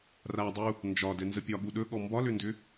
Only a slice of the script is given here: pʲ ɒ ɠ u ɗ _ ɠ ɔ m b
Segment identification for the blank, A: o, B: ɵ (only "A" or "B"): B